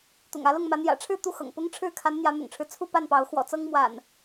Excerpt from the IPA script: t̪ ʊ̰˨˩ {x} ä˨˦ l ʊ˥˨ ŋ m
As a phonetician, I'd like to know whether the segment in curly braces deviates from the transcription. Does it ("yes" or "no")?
yes